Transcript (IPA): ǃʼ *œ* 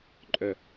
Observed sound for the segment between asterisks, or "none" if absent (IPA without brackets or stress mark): œ